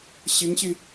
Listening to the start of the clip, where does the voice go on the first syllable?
rising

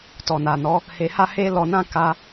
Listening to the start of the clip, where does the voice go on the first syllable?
low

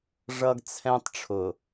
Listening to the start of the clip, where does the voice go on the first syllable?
high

